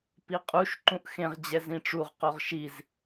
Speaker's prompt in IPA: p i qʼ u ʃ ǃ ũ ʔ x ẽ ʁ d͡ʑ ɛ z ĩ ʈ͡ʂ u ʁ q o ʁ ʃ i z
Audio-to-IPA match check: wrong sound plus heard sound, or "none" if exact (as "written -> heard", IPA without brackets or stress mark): none